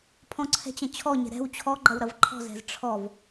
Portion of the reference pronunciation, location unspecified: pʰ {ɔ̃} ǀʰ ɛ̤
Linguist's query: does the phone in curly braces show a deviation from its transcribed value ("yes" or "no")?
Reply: no